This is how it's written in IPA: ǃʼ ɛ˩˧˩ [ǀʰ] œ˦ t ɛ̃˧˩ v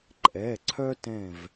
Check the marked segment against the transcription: correct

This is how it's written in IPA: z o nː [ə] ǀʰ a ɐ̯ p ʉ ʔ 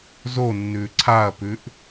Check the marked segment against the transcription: incorrect: ʉ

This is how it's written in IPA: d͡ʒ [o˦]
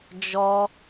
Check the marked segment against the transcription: incorrect: ɔ˦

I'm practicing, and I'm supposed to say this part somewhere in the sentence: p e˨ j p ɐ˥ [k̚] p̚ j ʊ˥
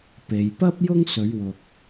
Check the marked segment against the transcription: incorrect: none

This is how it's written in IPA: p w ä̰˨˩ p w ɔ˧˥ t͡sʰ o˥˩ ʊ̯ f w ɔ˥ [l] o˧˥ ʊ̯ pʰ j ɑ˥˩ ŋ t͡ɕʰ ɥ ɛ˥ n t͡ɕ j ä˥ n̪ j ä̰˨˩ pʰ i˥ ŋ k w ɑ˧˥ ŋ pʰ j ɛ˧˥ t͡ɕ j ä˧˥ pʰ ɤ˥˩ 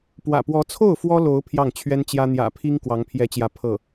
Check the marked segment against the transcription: correct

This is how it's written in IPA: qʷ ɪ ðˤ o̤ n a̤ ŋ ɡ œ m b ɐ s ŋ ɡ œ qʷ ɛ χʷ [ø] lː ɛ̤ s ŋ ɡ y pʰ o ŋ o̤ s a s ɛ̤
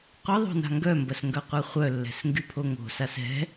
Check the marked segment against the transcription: incorrect: œ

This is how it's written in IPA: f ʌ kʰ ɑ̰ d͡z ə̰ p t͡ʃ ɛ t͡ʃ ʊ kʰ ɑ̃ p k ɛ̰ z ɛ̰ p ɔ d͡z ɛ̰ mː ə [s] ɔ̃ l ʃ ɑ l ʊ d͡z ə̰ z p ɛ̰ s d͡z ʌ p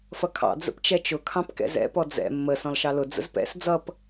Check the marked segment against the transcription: correct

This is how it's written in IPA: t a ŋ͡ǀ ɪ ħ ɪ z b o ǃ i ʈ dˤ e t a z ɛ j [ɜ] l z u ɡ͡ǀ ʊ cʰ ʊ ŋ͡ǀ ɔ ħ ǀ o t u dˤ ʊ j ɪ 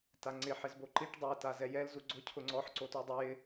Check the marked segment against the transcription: incorrect: ɛ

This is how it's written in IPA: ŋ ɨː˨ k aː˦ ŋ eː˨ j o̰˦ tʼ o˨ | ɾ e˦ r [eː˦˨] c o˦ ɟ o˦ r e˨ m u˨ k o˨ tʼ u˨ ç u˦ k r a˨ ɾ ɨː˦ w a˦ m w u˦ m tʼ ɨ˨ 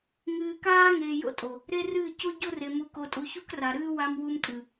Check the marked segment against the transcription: incorrect: ɨː˦˨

